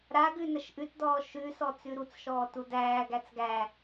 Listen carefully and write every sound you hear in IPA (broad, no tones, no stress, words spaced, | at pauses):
ɾaɡʉ nəʃʔʉtdɔː ʃʉsɔ t͡sʉɾut͡sʃɔː tudæːɡæt͡s ɡæ